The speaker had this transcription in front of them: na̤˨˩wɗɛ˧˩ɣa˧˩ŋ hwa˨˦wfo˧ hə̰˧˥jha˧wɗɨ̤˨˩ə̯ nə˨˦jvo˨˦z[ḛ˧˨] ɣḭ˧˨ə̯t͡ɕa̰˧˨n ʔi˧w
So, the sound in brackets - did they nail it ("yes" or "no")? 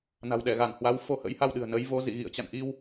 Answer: no